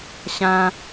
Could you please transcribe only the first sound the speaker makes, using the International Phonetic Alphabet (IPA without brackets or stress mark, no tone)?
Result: ɕ